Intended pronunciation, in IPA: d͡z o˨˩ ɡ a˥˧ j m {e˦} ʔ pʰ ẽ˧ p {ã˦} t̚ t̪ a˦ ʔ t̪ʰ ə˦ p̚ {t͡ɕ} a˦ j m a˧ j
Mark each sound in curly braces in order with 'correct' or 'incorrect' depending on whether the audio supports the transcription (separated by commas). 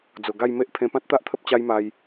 correct, correct, correct